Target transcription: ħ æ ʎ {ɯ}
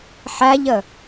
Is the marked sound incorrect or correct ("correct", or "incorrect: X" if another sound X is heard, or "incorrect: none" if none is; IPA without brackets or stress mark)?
incorrect: ə